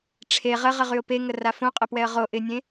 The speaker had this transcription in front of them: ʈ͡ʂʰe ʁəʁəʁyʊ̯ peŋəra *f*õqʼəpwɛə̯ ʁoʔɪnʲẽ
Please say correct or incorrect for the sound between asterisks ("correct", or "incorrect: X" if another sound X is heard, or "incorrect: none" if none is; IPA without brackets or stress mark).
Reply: correct